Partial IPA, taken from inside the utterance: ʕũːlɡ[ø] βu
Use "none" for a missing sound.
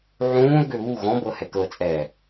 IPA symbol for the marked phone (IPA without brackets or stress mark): ø